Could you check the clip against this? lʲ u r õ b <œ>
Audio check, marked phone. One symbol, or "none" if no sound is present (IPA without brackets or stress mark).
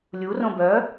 œ